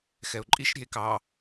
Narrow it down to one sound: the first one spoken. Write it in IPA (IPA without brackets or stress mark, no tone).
x